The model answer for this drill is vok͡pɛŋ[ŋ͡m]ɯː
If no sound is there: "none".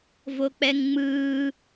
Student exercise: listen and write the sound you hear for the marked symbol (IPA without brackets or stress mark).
ŋ͡m